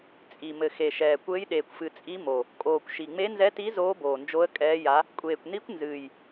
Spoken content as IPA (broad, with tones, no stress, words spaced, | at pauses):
t͡sʼi˨˩ mɘ˨˩xe˨˩ʃɛː˨˩kʷɘː˧˥j ɗeː˨˩kʷfɨ˨˩ t͡sʼi˧˥mo˨˩ | kʼoː˨˩kʷ ʃi˨˩ŋ͡me˧˥nzɛ˧˥ti˧˥ zoː˧˥boː˨˩nd͡ʒo˧˥ə̯ kʼɛː˧˥ja˧˥ | kʷʼeː˨˩kʷni˧˥kʷnzɨː˨˩j